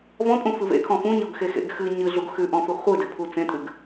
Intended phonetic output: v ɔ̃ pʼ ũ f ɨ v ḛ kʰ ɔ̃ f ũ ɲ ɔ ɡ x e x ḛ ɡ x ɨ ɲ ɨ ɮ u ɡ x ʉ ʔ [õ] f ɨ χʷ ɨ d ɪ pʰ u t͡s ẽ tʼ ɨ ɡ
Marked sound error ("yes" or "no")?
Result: yes